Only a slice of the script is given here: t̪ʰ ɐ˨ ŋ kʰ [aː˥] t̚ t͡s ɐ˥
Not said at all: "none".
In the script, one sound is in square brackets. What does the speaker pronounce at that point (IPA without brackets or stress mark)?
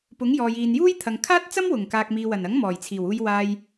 aː˥